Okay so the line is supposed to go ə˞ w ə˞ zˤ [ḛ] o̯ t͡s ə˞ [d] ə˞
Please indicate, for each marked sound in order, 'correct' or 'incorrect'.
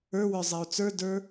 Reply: incorrect, correct

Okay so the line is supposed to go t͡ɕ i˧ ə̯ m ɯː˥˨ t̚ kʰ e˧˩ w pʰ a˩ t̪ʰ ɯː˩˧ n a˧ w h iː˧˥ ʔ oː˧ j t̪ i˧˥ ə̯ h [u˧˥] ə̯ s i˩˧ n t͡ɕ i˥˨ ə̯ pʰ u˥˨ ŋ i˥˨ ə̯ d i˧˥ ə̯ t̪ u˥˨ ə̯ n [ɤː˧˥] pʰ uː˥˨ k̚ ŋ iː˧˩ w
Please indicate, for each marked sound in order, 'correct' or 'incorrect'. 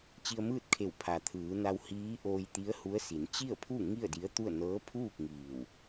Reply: correct, correct

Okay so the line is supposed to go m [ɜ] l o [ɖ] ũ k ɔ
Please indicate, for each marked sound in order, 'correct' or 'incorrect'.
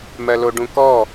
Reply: correct, correct

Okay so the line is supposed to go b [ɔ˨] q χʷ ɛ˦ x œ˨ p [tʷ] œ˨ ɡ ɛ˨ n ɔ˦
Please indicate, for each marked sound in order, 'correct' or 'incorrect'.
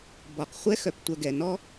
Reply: correct, correct

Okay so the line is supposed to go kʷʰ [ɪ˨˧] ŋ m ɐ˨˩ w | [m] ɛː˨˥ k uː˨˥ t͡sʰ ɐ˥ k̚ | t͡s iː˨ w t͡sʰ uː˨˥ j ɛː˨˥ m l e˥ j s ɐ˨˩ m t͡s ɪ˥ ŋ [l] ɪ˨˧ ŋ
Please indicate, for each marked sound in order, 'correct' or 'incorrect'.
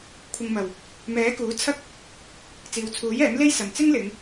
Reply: incorrect, correct, correct

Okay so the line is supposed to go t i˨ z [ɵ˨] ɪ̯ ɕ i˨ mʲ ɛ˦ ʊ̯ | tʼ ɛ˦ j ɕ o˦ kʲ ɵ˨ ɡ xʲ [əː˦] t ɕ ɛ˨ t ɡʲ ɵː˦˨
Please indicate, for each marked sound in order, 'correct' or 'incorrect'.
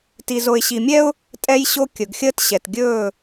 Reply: incorrect, correct

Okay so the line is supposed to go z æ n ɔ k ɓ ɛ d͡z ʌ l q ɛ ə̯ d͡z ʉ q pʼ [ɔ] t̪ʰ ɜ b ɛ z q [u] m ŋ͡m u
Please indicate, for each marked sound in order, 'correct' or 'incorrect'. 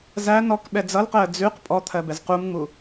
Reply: correct, correct

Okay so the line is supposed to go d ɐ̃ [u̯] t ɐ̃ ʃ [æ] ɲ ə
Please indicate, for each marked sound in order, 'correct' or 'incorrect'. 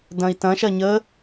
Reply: incorrect, incorrect

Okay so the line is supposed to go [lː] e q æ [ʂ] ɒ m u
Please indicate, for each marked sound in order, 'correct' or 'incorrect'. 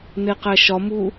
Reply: incorrect, incorrect

